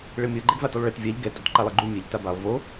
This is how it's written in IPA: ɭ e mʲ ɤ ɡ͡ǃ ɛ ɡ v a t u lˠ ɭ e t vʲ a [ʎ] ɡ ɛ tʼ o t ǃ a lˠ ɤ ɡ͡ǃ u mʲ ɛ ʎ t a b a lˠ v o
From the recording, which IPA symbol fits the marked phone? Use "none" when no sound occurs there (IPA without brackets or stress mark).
ʎ